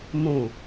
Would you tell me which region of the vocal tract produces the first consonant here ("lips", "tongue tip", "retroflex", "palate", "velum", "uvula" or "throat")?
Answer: lips